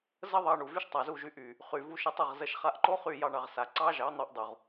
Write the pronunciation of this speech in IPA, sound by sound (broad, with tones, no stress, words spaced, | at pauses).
zə˦ðˤɑ˧ ɳu˨vy˦ʃtˤa˨zu˦˨ʒ y˧ʔy˨ | χy˨vu˧ʃ ə˧tˤə˦˨ʁ zə˧ʃχa˧ʔǃo˦χy˦˨ jɑ˧ɳɑ˨ʁ sa˨ ǀɑ˦ʒɑ˨˦n̪ɑ˧ʔ dˤu˨ʁ